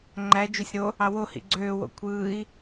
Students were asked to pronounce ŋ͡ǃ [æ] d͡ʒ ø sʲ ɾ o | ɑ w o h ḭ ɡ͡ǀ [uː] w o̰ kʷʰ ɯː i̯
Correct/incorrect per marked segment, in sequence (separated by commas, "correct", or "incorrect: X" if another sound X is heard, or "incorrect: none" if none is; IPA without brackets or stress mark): correct, incorrect: øː